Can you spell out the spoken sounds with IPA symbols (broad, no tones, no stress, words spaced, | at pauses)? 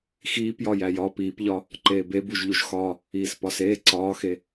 xiːpjɒ jæjɒ piːpʎɒ | ǃeːbebuʒ ʎuʒxɒ | iːspɒseː ǀɒːxe